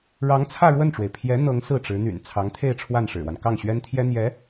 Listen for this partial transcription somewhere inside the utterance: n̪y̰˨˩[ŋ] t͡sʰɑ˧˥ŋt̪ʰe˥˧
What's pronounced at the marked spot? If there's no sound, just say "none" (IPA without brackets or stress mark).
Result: n